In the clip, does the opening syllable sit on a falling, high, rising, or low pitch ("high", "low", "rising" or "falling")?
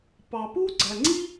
low